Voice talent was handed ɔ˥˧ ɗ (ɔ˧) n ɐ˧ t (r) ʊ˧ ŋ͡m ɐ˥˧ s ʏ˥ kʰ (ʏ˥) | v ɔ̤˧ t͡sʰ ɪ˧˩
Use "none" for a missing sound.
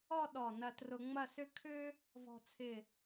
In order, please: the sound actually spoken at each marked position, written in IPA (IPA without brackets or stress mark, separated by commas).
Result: ɔ˧˩, r, ʏ˥